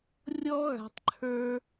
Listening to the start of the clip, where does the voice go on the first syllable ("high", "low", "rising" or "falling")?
high